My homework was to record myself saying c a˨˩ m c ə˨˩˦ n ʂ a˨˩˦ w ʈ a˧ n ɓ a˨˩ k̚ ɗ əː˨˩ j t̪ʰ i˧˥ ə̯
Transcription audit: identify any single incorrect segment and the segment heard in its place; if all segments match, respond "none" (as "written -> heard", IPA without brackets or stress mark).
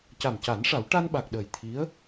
ə˨˩˦ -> a˨˩˦